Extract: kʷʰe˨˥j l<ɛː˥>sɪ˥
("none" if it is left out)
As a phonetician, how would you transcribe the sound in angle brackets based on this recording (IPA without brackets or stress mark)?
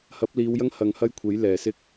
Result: ɛː˨˩